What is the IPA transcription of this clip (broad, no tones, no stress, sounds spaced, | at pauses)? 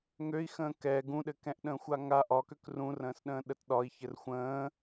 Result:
ŋ ø i̯ x ə̃ː k ɛ ɡ ũ ɗ ɘ k ɛ̃ ʔ ɗ ə̃ː xʷ a ŋ a ʔ ɒ k ø k r ũ r ə̃ː s ɗ ə̃ː ɗ ə t ɗ ɒ i̯ ç ɘ r xʷ ə̃ː